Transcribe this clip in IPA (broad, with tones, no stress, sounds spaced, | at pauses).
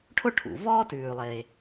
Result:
ʈʰ ʊ˥ ʈʰ ṵ˩ v ɔː˥ t ʉː˩ lˠ e˩